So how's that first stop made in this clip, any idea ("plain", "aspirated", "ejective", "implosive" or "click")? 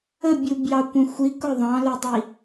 plain